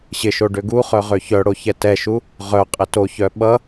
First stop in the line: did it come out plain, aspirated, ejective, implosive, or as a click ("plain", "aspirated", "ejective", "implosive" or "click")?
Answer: plain